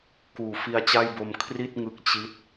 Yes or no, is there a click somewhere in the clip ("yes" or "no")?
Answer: no